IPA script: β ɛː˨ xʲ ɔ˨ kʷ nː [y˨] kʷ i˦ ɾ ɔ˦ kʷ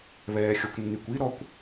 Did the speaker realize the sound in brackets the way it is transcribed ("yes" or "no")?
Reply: yes